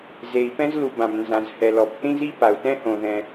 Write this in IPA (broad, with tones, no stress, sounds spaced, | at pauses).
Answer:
z e˩ i̯ p ɛ̃˥ z l u˩ b ã˩ b n z ã˩ z h ɛ˩ l ɔ˩ b θ ĩ˥ z i˥ p a˩ u̯ t ɛ̃˥ h õ˩ ð ɛ̃˩